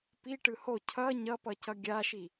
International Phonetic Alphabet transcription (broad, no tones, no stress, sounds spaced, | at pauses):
p i ʈ ɯ h o cʰ ʌ ɲ ʌ p ʌ c ʌ ɡʲ a ʃ i